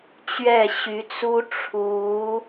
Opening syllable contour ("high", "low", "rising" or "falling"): falling